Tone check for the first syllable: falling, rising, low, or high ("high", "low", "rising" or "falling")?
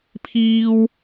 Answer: high